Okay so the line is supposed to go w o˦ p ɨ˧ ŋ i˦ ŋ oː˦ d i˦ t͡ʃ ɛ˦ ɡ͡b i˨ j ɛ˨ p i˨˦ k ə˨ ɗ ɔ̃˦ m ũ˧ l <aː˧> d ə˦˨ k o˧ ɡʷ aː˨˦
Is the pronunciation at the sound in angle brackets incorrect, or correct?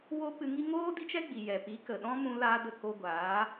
incorrect